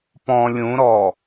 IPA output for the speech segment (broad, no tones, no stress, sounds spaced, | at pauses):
p ɔ̃ lʲ ũ ɾ ɔ